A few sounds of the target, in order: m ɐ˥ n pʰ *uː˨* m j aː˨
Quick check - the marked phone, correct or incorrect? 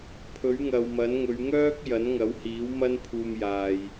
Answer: incorrect